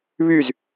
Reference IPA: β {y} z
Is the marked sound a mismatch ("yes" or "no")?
no